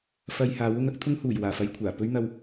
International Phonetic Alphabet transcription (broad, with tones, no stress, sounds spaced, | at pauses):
f ɐ˧ j h aː˨˥ w ʊ˥ ŋ ɐ˥ k̚ t̪ʰ ʊ˥ ŋ h uː˨˩ j w aː˨˩ f ɐ˧ j kʷʰ aː˨˩ p ɵ˥ ɥ n̪ ɐ˧ w